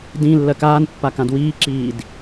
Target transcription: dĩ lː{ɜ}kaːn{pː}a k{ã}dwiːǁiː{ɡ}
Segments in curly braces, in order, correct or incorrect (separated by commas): correct, correct, correct, incorrect